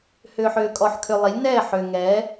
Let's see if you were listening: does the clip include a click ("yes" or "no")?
no